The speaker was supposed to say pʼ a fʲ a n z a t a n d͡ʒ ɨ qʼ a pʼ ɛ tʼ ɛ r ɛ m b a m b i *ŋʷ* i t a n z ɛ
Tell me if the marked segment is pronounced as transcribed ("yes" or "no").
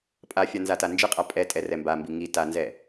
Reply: no